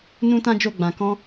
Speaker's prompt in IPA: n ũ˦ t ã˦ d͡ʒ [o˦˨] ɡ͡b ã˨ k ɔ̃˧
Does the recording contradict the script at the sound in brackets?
no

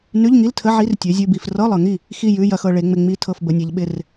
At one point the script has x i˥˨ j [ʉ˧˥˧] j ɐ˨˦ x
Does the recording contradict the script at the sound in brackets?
no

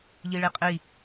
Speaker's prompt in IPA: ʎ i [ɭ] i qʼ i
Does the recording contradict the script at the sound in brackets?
no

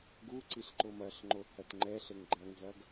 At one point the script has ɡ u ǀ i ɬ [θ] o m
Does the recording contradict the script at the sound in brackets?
yes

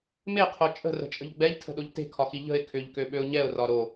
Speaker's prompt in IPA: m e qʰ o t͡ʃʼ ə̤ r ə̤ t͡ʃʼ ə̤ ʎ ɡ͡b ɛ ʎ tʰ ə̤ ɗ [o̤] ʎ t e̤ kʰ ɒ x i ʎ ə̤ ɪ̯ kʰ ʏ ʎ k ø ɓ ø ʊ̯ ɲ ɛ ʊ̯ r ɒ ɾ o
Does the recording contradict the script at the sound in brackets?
yes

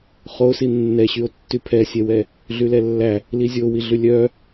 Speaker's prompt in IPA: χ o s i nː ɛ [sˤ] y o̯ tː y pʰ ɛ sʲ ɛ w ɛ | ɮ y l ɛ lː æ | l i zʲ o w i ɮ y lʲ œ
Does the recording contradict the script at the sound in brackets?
yes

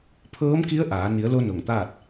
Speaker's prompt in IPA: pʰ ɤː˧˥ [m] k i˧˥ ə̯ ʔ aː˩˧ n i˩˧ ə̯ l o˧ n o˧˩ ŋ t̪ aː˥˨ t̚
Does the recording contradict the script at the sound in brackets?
no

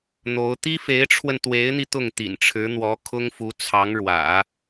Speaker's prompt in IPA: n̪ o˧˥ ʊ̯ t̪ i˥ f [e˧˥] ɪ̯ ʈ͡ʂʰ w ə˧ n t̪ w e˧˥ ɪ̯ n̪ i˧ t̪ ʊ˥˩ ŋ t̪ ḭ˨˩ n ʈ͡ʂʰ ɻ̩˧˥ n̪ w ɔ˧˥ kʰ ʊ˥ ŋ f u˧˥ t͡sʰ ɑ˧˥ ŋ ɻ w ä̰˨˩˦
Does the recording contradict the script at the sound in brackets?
no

